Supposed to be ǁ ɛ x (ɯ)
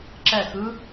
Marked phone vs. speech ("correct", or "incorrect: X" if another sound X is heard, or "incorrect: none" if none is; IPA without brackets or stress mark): correct